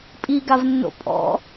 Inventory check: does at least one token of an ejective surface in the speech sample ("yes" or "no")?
yes